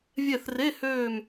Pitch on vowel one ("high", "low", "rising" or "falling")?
falling